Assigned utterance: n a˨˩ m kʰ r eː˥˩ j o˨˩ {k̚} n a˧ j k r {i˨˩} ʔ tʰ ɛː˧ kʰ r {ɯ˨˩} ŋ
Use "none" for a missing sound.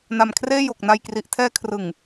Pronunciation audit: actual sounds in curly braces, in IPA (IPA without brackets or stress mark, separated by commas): k̚, i˨˩, ɯ˨˩